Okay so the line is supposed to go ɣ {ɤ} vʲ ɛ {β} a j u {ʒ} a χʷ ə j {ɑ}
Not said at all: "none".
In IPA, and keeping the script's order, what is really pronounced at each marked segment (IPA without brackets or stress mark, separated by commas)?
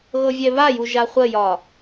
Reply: ɤ, β, ʒ, ɒ